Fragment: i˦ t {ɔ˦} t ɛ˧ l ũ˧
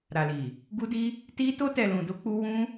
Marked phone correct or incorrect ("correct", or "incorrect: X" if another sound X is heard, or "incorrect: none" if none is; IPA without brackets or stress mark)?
incorrect: o˦